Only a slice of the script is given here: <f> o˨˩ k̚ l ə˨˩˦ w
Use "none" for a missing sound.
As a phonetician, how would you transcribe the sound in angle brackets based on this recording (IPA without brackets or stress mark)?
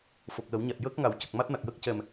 f